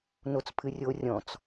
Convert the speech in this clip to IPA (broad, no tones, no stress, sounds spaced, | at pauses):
n o t͡s pʰ ɨ rʲ o rʲ ɔ̃ t͡s